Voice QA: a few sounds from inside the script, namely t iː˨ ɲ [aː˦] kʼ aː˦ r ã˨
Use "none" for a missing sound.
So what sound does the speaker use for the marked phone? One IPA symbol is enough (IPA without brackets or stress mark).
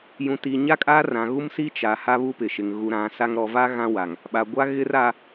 a˦